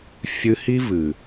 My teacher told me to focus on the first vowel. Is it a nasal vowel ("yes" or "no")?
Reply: no